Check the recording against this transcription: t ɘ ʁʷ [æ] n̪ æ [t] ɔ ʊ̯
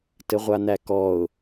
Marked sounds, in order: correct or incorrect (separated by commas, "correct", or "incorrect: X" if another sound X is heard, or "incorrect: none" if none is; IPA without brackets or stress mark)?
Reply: incorrect: a, incorrect: k